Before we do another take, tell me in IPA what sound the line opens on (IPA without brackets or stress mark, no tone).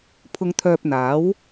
pʰ